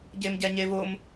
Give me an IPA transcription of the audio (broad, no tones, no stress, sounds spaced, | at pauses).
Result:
ɟ e m ɟ ɛ ɲ e v ʊ m